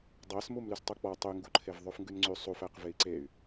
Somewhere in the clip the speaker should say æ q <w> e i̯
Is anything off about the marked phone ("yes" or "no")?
yes